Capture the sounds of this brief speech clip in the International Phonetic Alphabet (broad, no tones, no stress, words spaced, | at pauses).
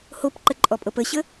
hopǃəǃʼɔpʼɤp əɕə